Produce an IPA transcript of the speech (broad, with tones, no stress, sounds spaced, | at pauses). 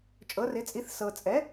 t͡ʃʼ ɤ˩˥ r ɪ˩˥ t͡sʼ i˩˥ θ s ɤ˨ t͡sʼ ɛ˩˥